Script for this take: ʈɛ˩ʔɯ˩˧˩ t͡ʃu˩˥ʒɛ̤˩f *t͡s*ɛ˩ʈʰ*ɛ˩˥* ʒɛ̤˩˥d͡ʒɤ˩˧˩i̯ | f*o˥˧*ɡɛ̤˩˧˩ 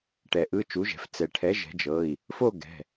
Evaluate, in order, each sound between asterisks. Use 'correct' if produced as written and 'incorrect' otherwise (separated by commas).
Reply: correct, correct, correct